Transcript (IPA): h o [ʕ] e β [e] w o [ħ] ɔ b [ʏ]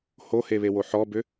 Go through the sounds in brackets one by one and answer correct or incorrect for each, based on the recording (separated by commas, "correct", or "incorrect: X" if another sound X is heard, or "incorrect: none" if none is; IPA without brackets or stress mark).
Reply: incorrect: h, correct, correct, correct